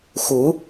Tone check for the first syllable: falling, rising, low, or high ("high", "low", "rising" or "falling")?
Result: rising